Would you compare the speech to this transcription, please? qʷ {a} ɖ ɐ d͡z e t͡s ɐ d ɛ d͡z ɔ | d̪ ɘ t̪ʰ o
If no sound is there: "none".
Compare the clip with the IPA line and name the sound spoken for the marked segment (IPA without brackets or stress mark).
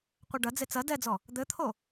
ɐ